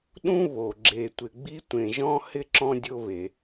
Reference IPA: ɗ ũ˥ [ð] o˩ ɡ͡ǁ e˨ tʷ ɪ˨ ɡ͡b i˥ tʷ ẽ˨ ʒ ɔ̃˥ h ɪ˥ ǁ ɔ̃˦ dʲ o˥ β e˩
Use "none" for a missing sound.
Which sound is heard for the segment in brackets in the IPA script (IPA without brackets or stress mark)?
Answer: β